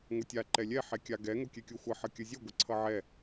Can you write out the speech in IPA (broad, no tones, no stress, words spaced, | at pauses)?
ŋʷʌtʲa ǃɛlʲɛ ħɛkʲaɡɛ ŋokʲɛkʲoxʷʌ ħʌkʲəzʲə ɡʷəǀʰʌʕɛ